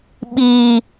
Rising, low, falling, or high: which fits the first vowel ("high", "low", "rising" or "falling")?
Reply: low